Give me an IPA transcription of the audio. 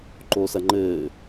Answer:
ǃ oː s ɐ ŋ͡ǃ ɘː

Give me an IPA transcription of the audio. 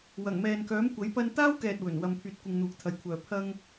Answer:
w ɐ˨˩ ŋ m ɛː˨ n k œː˨˥ m kʷ ɐ˨˥ j p ɐ˧ n t̪ aː˥ w k ɛː˨ t̚ w ɵ˨˩ n w ɐ˨ m pʰ yː˨ t̚ kʷ ɪ˨ ŋ n̪ uː˨ k̚ t̪ʰ ɐ˨ j kʷʰ œː˨ pʰ ɐ˧ ŋ

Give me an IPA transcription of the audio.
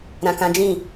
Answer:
ɾ ã˨ k ã˨˦ d͡ʒ ĩ˦˨

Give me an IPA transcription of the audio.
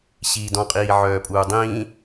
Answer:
ɕ iː d ɔ̃ qʼ iː ʕ œː pʼ uː dˤ ĩː

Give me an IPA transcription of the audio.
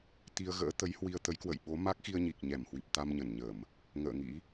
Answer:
t̪ i˧ ə̯ ɣ ə̰ː˧˥ t̪ ə˨˦ j h w i˧ ə̯ t̪ ə˨˦ j k w ə̰˧˨ j ɓ o˨˦ m a˦˥ k̚ x i˧ ə̯ ɲ i˨˩ k̚ ɲ ɛ˧˩ m h w i˨˩ p̚ t̪ a˧ m ɲ ə˧˩ n ɲ ə˧˩˨ m | ŋ ə̰ː˧˨ ŋ ḭ˧˥

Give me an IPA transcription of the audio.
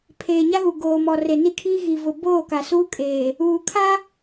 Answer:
pʰ eː˨ ɲ a˦ ɣ u˨ ɡ oː˨ m ɔ˨ r e˨ n i˦ kʰ iː˦ ɣ i˨ v ʊ˨ b oː˦˨ k a˨ s uː˦ kʼ eː˨ | uː˨ kʰ a˦

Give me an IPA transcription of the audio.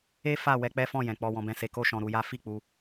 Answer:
e˦ f a˦˨ w ɛ˧ k͡p ɛ˦ f ɔ̃˦˨ j ɛ̃˨ k͡p ɔ˧ w ɔ̃˧ b ɛ̃˧ s e˧ k o˦ ʃ ɔ̃˧ ɾ u˧ j a˦ f i˦˨ k͡p u˧

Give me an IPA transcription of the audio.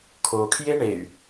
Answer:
kʰ o kʰ j e ɳ e y̯

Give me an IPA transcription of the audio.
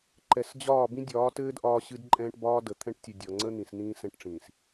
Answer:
ǃ ɛ˨ s d͡ʑ ɒː˦˨ b ĩ˦ dʲ ɒː˨˦ t ɘː˦ d ʔ ɒː˦ ɕ ɨ˦ d ǃʼ ɛ̃ː˦ ʈ b ɒː˦ d ə˨ t̪ʰ ɛ̃˦ ʈ tʲ ɨ˨ dʲ ɒ˨ ŋ͡ǀ ə˦ n̪ ĩ˨ s n̪ ĩː˦ s ɛ̃˦ ʈ ʈ͡ʂ ĩː˨ s

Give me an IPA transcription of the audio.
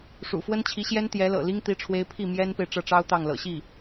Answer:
ʂ ṵ˨˩ f w ə˥ n t͡ɕʰ i˧˥ ɕ j ɛ˥ n t̪ j ɛ˧˥ l ɤ̰˨˩ l i˥ ŋ t̪ i˧˥ ʈ͡ʂʰ w e˧˥ ɪ̯ pʰ i˥˩ m j ɛ˥ n p e˨ ɪ̯ ʈ͡ʂ ɤ˥˩ ʈ͡ʂ ɑ˥ ʊ̯ t̪ ɑ˥˩ ŋ l ɤ̰˨˩ ɕ i˥˩

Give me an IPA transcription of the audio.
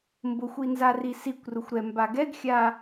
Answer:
m b ʊ xʷ i n z a r i s i kʷ r ʊ xʷ ɾ ɛ m b a ɡ ɛ ɡ xʲ a

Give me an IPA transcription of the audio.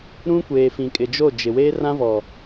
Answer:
ɾ ũ˦ kʷ eː˨ f ĩ˨ kʼ ɪ˨ d͡ʒ o˦˨ d͡ʒ ɪ˨ w eː˦ r ã˦ v ɔ˨

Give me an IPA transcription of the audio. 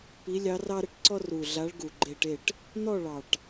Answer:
p i˨˥ lʲ ɑ˨˥ r ɑ˦ ɾ ə˥˨ ʈ ǀ ɔ˦ r u˨˩ ɮ a˨˥ ɭ ɡ u˨˩ ɡ͡ǃ e˥˨ ʈ e˥˨ ʈ | n̪ ɔ˥˨ ɭ ɑ˨˩ ʈ

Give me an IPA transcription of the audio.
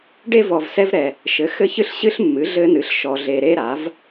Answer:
ɖ e˦ v ɔ˨ v s ɛ˦ v ɾ ɛ˨ | ʃ ɘ˩˥ x ɘ˦ ç ɨ˦ ɬ ɕ ɨ˦ ɬ mː ɨ˩˥ ɮ ɘ˦ n ɨ˩˥ ɬ ʃ ɔ˨ ɮ e˨ ɾ e˦ ɾ a˩˥ v

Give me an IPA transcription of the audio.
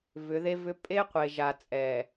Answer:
v ʏ˨˦ ð e˦ v ʏ˦ pʼ e˦ qʷ e˨ ʒ a˨ t͡sʼ ɛ˨

